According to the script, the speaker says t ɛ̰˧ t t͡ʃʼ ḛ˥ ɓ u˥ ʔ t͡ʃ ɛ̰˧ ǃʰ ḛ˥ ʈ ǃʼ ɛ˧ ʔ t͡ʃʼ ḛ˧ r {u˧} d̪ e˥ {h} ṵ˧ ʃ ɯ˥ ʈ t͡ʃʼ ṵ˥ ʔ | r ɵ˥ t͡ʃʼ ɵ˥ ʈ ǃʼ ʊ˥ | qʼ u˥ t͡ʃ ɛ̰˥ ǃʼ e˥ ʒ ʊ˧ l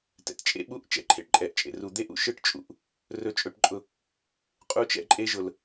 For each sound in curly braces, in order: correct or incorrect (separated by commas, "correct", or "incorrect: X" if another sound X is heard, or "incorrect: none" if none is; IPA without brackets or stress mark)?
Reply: correct, incorrect: ʔ